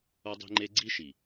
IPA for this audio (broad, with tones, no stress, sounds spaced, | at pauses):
o˦ dˤ i̤˦ ŋ͡ǃ e˦ ɡ͡ǀ i˦ ʃ i˨